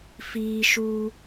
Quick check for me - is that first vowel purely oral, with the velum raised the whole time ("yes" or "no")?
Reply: yes